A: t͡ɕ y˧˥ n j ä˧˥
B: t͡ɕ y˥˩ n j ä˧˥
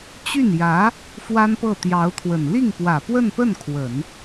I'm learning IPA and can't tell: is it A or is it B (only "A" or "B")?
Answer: B